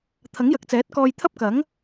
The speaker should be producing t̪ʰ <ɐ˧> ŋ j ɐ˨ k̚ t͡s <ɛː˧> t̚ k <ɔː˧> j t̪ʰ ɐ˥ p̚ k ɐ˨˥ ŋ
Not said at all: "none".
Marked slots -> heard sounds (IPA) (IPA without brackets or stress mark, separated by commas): ɐ˨˥, ɛː˨˥, ɔː˧